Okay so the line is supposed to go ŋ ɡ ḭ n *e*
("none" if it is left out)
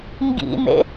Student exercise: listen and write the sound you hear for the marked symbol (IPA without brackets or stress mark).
ḛ